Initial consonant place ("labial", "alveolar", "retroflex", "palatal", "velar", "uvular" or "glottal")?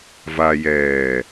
labial